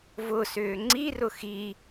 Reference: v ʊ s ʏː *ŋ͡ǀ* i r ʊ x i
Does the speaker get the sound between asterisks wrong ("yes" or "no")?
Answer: no